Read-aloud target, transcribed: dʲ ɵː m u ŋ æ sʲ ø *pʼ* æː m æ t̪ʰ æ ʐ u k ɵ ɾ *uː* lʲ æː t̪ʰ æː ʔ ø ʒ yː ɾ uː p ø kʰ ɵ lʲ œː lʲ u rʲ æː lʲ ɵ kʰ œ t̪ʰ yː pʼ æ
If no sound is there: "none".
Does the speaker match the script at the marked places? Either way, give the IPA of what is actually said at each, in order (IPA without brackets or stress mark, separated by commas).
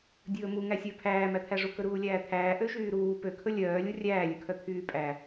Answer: pʰ, uː